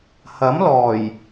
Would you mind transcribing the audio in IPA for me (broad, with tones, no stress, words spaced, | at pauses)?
hɐ˨˥mlɔː˨˩j